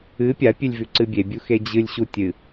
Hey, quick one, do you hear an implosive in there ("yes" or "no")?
no